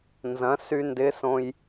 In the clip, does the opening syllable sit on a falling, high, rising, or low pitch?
rising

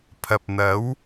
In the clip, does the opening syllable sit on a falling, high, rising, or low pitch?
low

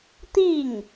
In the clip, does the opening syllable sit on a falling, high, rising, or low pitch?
falling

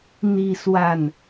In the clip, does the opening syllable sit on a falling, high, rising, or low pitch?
falling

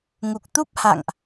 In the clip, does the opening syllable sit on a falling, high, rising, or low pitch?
low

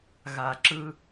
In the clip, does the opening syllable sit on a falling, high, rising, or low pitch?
low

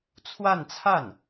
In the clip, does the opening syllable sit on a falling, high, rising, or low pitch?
falling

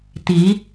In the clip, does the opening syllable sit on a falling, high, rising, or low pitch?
rising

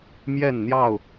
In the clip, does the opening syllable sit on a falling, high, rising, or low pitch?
falling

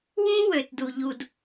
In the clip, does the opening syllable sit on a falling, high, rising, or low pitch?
high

